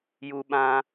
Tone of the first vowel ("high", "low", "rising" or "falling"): high